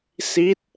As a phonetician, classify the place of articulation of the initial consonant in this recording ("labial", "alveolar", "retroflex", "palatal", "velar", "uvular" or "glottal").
alveolar